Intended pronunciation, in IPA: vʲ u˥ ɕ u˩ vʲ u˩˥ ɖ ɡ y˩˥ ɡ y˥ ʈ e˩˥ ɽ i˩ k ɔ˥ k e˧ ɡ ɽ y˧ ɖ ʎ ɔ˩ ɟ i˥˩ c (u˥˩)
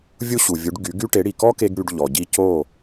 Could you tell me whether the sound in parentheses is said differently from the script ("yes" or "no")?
yes